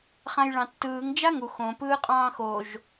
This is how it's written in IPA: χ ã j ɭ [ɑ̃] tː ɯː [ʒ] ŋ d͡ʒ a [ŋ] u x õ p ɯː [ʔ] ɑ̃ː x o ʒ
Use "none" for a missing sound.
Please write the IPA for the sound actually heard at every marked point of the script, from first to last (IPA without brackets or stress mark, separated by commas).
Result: ɑ̃, none, ŋ, qʼ